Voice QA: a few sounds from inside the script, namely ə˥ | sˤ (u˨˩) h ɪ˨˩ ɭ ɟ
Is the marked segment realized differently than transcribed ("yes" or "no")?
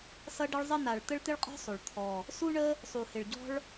no